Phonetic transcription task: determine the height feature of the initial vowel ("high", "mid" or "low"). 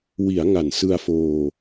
high